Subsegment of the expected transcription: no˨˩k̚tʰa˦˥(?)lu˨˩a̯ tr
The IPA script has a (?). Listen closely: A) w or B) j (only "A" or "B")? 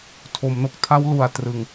A